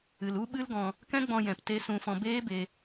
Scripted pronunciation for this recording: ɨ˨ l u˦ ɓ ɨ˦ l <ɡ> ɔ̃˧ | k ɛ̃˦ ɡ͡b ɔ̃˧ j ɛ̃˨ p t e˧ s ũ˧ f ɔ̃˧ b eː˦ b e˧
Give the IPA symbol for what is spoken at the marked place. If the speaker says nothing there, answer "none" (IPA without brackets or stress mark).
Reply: ɡ